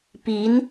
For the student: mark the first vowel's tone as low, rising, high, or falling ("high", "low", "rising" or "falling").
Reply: rising